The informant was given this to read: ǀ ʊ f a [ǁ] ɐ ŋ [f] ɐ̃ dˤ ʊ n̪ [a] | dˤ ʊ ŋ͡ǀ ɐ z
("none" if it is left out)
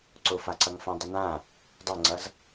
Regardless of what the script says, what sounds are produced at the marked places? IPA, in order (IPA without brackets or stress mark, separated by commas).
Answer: ǀ, f, ã